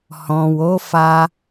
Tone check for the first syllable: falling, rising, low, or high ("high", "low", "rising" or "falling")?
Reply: low